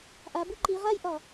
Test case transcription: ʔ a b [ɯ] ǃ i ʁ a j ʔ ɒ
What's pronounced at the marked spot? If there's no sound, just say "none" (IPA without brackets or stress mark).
u